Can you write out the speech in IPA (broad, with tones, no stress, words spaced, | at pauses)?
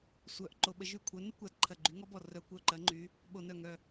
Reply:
sʷœ˧˩˧ʔ ǃo˧˩˧ɓə˨˦ ʒy˧˩kʷʰœ˨˦nɪ˦˥kʷa˧˩d ǃʰɐ˧˩ɡ͡ǃy˨˦ŋɔ˦˥bɔ˧˩ rœ˧˩˧ kʷœ˧˩ǃɐ˨˦ ŋ͡ǃy˨˦ | ɓo˧˩˧nœ˧˩ŋœ˧˩